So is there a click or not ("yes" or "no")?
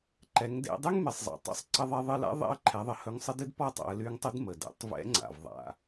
yes